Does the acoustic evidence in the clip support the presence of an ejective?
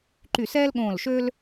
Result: no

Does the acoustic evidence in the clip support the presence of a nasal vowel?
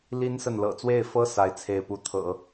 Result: no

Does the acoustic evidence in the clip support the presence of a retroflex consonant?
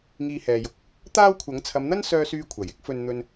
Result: no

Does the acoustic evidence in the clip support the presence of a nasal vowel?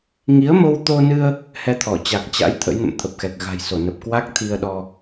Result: no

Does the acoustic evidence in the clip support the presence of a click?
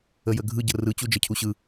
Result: no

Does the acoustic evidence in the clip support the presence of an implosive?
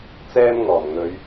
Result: no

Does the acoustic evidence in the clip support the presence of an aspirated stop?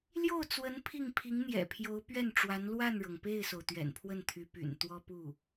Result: yes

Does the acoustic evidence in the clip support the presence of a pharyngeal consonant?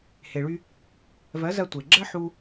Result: yes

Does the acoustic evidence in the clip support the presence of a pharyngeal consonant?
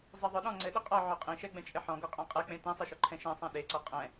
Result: yes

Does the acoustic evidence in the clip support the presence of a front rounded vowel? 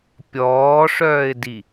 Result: yes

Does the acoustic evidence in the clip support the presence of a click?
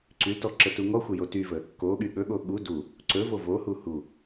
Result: yes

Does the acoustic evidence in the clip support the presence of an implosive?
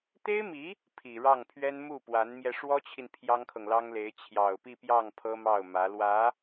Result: no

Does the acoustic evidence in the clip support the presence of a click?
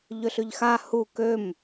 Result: no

